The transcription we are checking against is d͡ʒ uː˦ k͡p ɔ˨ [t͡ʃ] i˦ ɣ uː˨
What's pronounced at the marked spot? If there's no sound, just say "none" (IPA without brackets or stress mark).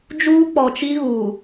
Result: t͡ʃ